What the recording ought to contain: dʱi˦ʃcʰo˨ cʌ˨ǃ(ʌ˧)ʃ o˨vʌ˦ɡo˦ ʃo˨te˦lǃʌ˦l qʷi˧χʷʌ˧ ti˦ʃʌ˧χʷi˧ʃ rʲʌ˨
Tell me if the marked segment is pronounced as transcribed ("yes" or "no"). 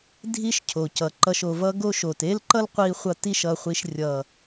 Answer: yes